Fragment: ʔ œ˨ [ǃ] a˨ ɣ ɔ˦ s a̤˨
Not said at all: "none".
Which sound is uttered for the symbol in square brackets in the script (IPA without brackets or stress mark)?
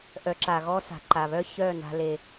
ǁ